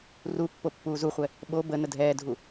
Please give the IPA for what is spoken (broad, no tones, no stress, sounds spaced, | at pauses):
r u pː o pː uː z u χʷ ɛ | ɓ o b ə n ə dʱ ɛː dʱ u